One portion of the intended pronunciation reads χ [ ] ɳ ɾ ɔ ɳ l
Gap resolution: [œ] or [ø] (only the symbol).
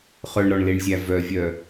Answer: œ